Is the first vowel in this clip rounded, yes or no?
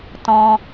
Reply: yes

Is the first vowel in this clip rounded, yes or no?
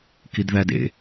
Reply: no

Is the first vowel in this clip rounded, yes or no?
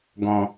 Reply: yes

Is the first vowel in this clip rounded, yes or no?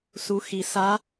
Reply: yes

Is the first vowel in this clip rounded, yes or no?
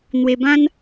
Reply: no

